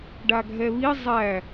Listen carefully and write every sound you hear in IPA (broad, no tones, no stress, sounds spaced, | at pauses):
ɖ a ɡʱ ɛ β i zˤ æ